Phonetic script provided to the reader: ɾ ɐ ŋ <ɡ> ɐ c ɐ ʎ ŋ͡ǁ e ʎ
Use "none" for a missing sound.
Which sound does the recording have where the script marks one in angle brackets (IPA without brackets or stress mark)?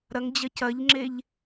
d͡ʑ